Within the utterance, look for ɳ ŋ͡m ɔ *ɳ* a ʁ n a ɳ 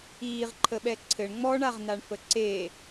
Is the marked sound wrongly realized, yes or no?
no